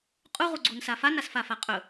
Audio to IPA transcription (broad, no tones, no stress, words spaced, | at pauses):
qʼuʁuɡ͡ǀunsa fanasfafa qʼɵ